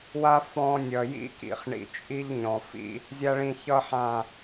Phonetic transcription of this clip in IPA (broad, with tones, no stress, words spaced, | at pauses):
wa˦ fɔ̃˧ nʲʌ˨jḭ˦kḭ˨χ ɳḭ˨t͡ʃʼi˦ʎ ɲɔ̃˨fḭ˦ | zʲa˦ɭĩ˧çʌ˦ ħã˦˨